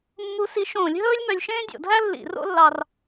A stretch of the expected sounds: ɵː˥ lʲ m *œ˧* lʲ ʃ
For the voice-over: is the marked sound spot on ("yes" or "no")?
yes